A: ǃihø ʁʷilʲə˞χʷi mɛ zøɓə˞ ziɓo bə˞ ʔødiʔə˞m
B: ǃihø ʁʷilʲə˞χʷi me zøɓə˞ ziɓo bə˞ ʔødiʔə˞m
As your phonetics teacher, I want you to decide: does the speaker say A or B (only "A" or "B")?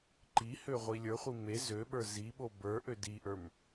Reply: B